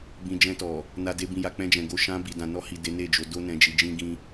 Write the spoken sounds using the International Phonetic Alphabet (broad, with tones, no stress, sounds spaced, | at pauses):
b ĩ˨ d͡ʒ ɛ̃˧ t ɔ˨ | n a˧ d e˧ b ĩ˨ j a˨ k͡p ɛ̃˧ d͡ʒ ɛ̃˨ ɡ o˧ ʃ ã˧ b i˨ d ã˨ n ɔ˧ h i˨ d e˨˦ n e˦˨ d͡ʒ o˨˦ d o˦ n ɛ̃˧ d͡ʒ i˧ d͡ʒ ĩ˦ ɡ ĩ˦